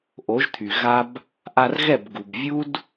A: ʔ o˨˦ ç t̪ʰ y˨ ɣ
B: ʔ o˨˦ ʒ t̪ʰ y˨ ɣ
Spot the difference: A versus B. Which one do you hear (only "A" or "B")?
B